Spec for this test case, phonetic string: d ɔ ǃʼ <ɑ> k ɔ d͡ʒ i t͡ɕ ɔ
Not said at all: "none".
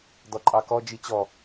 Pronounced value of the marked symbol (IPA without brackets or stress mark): ɑ